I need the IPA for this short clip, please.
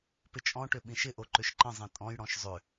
p ɪ t͡ʃʼ ɔ̃ ʈ ʏ ɓ ĩ ʃ ɪ ʔ o ǃ ʏ ʃ ǃ ə̃ zˤ ĩ tʼ ɔ̃ j ɽ ɔ̃ ʃ zˤ ʏ

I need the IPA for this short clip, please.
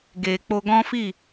ɡ e˨ k͡p o˧ ɡ ɔ̃˦ f i˦˨

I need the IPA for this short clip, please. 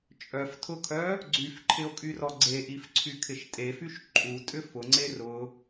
t͡ʃʼ œ f tʰ ʊ kʰ œ | ɡ͡ǀ y f ǃʰ ɪ o̯ kʼ y r ɔ ɡ͡ǀ e ʔ i f ǀʰ y kʰ ɪ ʃ tʼ e f y ʃ ǃʼ u tʼ ʏ f ʊ ŋ͡ǀ e r ʊ

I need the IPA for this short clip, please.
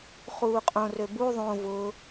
χ uː qʼ õ r ø b u ðˤ õ v ʊ

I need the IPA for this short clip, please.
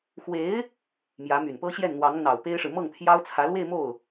x w e˧˥ ɪ̯ | m j ä˧˥ m y˨˩ n p ɤ˥ ɕ j ɛ˥˩ n n̪ w ɑ˧˥ ŋ n̪ ɑ˨˩ ʊ̯ p e˥ ɪ̯ ʂ ɻ̩˨ m ɤ˥˩ ŋ t̪ʰ j ɑ˥ ʊ̯ t͡sʰ ä˧˥ l w e˥˧ ɪ̯ m o˥˩ ʊ̯

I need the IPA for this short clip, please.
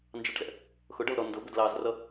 n d͡ʒ ɑ ʈ z ɛ̰ | x ʊ ɖ ʌ l ɾ ɔ n d ʊ b ʊ d l ɑ z r ʌ

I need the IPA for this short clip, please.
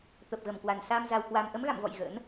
t̪ ə˨˩ p̚ ɣ ə˨˩ m k w a˨˩ n s a˧ m z a˧ w k w a˧ m ʔ ə˨˦ m ɣ a̰˧˨ m v ɔ̰˧˨ j ɣ ə̰˧˥ n

